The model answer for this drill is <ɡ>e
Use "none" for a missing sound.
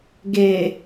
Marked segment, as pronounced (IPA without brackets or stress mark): ɡ